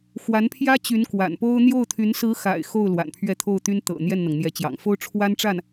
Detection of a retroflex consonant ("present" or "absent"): present